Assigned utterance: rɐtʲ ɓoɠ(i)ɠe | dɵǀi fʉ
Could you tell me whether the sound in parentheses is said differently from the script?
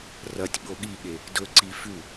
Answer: no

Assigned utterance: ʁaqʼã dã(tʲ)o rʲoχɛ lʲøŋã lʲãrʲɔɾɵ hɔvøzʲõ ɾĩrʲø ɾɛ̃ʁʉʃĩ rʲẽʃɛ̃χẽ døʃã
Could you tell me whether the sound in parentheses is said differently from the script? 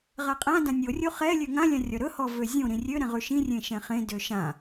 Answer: yes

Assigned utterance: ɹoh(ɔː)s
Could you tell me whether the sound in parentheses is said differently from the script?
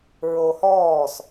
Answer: no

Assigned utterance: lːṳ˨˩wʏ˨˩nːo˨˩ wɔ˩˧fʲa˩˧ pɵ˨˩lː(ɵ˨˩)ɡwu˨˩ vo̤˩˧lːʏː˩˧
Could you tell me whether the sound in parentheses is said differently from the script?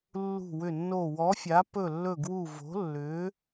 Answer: no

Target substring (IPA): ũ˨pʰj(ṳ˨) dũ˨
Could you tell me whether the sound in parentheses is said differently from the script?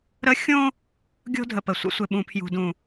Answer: no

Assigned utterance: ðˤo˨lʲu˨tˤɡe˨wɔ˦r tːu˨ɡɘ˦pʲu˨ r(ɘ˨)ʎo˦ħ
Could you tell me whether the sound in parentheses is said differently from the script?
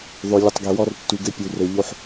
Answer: no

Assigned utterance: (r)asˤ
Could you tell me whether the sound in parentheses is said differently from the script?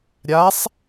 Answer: yes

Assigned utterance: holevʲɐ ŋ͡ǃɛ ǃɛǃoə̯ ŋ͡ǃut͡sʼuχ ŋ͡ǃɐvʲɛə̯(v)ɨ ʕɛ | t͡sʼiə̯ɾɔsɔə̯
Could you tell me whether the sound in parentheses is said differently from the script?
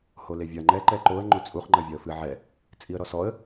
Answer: yes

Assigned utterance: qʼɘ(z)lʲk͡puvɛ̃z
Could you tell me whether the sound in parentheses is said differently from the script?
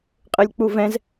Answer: yes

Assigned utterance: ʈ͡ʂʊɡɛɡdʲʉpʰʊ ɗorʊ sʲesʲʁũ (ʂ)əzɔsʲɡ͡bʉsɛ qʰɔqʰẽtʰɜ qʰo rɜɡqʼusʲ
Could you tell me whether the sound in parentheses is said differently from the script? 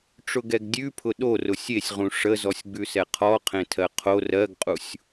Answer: no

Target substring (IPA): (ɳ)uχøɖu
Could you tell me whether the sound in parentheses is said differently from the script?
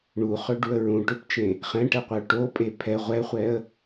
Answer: no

